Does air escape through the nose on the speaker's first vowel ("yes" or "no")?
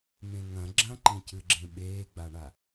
yes